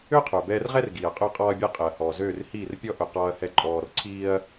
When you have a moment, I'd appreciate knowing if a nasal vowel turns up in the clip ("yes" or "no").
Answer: no